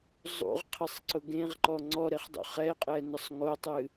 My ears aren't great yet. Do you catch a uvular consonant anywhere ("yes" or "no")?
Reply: yes